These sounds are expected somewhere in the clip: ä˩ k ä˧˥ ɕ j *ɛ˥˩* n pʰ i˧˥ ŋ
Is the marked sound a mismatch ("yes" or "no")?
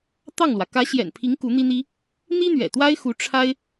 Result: yes